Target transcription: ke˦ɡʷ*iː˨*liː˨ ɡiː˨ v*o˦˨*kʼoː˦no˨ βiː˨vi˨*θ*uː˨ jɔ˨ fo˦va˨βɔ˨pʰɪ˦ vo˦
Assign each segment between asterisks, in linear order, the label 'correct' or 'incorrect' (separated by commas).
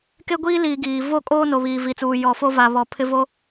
incorrect, correct, incorrect